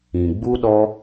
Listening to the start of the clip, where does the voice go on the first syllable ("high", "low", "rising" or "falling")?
low